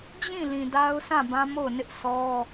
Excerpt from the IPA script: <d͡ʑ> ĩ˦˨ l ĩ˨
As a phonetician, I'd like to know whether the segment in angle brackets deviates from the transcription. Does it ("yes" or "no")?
no